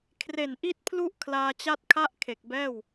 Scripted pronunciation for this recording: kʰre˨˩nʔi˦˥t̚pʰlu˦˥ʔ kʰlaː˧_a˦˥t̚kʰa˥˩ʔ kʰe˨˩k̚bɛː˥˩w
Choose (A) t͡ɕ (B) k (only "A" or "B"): A